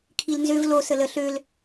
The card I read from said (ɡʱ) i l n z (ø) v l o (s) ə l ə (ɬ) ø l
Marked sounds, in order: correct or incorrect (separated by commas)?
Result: incorrect, correct, correct, correct